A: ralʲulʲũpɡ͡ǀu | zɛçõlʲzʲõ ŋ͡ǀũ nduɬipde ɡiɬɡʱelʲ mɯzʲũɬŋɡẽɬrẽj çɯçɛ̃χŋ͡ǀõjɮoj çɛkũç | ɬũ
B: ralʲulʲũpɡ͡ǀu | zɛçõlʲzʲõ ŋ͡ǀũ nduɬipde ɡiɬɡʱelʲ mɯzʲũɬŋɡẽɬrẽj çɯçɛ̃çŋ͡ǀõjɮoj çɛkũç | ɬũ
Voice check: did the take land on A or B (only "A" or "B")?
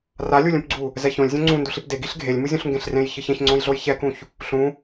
B